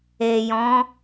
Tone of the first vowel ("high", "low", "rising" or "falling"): low